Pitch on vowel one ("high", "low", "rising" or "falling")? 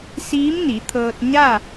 rising